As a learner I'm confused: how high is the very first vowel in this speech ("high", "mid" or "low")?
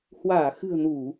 low